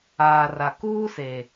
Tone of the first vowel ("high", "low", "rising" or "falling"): low